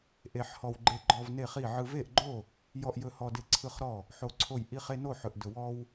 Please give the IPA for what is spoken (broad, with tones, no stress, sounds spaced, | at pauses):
ʔ e˦ ħ h ɔ˦ w ɡ͡ǃ e˥˨ ɡ͡ǃ ɔ˦ v n e˥˨ χ i˥˨ ʕ ɯ˦ v e˥˨ ʔ ɡ͡ǃ o˥˨ | j ɔ˦ ʔ j ɵ˦ h ɔ˦ d e˦ ǀʰ ɯ˥˨ χ ɾ ɔ˥˨ | ħ o˦ ǀʰ o˥˨ j ʔ i˦ χ e˦ n o˥˨ ħ ɵ˦ ʔ d ɵ˦ w ɔ˦ w